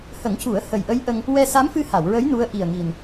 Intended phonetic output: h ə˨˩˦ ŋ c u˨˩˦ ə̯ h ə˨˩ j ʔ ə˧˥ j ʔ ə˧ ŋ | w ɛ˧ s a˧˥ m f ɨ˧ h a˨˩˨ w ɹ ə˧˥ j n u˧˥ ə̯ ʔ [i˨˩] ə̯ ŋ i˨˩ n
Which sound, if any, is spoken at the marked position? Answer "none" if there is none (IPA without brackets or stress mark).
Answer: i˨˩